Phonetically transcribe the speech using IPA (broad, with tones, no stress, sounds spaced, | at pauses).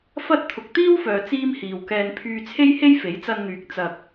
f ɐ˥ t̚ t̪ʰ ʊ˨ k̚ t̪ iː˥ w f œː˨ t͡s iː˥ m h iː˨ w k ɛː˧ n pʰ yː˧ t͡sʰ e˥ j h e˥ j f e˨˥ j t͡s ɐ˧ n n̪ yː˨ k̚ t͡s ɐ˨ k̚